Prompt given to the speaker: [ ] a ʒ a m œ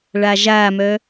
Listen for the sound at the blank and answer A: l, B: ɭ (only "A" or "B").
B